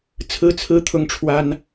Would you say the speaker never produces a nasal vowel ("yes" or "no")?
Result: yes